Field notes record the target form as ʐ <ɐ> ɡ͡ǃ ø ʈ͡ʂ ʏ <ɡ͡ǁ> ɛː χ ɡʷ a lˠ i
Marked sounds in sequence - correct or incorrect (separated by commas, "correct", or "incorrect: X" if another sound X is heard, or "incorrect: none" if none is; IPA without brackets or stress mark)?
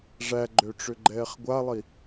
incorrect: æ, incorrect: ɡ͡ǃ